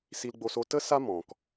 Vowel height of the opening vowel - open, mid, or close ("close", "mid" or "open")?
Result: close